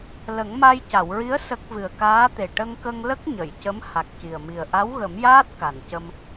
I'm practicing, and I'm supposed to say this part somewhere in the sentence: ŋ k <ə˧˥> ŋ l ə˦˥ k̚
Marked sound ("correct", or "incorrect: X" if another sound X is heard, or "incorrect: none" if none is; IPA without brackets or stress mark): incorrect: ə˧